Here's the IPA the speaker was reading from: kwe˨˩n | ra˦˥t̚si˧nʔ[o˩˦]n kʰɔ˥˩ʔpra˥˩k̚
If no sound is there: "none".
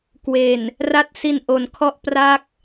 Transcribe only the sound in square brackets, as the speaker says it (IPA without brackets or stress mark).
o˩˦